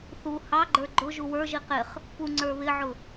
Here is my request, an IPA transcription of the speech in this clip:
θu hɑɡ͡ǃə˞ ɡ͡ǃʊ ʒuwə˞ʒi qɪχ | puŋ͡ǀə˞ βɪʕʊ

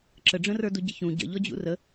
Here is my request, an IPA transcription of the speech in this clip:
ǁəɖ͡ʐə̃rə˞du ɟəçũ ɟə̰ʎɔd͡ʑṵ rə

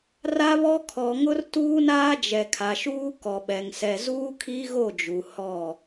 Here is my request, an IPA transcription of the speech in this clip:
ra˦βɔ˦ kʰɔ˨ŋʊ˦r tuː˦naː˦d͡ʒɛ˨ kʰa˨ʃuː˦ kɔ˨ɓɛ˨ŋsɛ˨ zuː˦kʰi˦ɣo˦˨d͡ʒu˨ hɔ˦˨

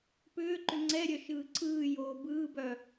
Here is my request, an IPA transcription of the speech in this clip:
pʏːǃʏ ŋ͡ǀɛɾʲœ ʃɯːǀʰɯːjoː bɯːbœ

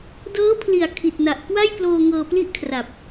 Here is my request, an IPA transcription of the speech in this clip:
dɤː˦˥pʰli˨˩a̯ kʰi˨˩t̚na˨˩ʔkwa˥˩jploː˧ ŋɤː˧pli˥˩ʔkʰra˨˩p̚

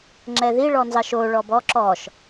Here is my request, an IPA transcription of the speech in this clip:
ŋ͡ǁɛði ɭɔnzɑʃo ɭɔbɔ ǁɔʃ

